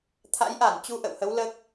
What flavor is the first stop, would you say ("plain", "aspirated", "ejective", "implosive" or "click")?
aspirated